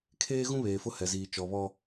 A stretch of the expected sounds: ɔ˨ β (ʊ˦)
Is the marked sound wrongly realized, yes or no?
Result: yes